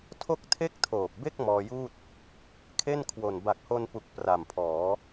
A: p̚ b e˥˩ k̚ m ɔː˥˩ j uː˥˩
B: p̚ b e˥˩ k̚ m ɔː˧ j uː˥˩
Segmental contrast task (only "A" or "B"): B